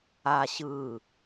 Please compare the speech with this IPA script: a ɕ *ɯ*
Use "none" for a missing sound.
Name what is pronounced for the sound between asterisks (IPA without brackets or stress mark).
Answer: ɯ